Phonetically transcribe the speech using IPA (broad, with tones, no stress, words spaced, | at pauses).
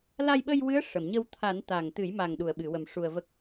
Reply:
la˧jɓə˧jwɨ˧˥ə̯ ʂə˨˩˨mɲə˧w t̪ʰa˨˩˦n t̪a˨˩ŋt̪ɨ˨˩˦jma˨˩ŋ ɗu˨˩˨ə̯ɓɨ˨˩˨wə˨˩m ʂu˧ə̯və˦˥k̚